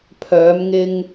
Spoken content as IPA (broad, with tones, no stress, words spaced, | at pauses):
pʰœː˨˧mŋɪ˧ŋ